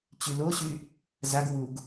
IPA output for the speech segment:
t͡ɕ y l o ɕ y | z a ɡ w u ɡ

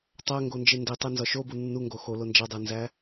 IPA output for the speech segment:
tˤ æ ŋ ɡ o n d͡ʒ e n d i tˤ e n z ɒ ʃ o b u nː u ŋ ɡ o x o l o n d͡ʒ æ dˤ e n z æ

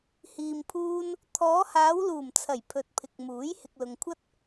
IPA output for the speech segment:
h iː˨ m pʰ uː˧ n | t̪ʰ ɔː˨˧ h aː˨˧ w l uː˨˩ m t͡sʰ ɐ˨˩ j pʰ ɵ˨ t̚ pʰ ɪ˨ k̚ m uː˨˥ j h ɪ˨ k̚ l ʊ˨ ŋ kʷʰ ɐ˥ t̚

